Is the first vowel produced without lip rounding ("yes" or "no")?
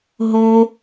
no